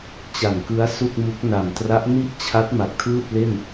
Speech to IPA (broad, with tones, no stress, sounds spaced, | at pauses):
t͡ɕ a˨˩ n k ɯ˦˥ a̯ s u˥˩ k̚ m u˦˥ k̚ n a˨˩ m t r a˦˥ ʔ n i˥˩ ʔ t͡ɕʰ a˦˥ t̚ m a˨˩ k̚ tʰ ɯː˥˩ t̚ l e˥˩ n